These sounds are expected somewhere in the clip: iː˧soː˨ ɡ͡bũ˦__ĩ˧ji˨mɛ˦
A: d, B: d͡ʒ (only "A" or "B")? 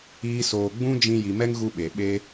B